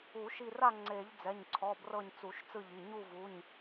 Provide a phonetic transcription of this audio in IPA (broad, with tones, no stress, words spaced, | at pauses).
u˨˩˦ ʃi˦˨ ra˦˨ ŋ͡ǀe˨˩˦ʎd͡zɛ˩˧˩ɲǀʰɔ˩˧˩ brɤ˦˨ɲt͡su˨˩˦ʃ t͡sɯ˦˨ʎi˩˧˩ ɲu˦˨vu˩˧˩ɲ